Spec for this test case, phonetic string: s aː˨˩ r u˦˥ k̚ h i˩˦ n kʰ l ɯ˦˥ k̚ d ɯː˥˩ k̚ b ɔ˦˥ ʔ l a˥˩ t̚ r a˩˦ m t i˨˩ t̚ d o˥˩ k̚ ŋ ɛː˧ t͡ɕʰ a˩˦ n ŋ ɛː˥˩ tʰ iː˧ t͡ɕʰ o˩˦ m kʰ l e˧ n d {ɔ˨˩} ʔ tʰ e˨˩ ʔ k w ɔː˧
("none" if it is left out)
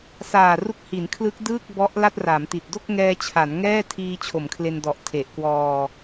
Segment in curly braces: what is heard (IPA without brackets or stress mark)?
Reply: ɔ˨˩